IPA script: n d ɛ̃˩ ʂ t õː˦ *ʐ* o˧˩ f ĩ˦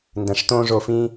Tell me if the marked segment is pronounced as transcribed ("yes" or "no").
yes